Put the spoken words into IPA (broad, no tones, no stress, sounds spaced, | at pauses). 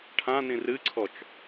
ʈʰ ã n ĩ r ɨ ǀʰ ɔ t͡ʃ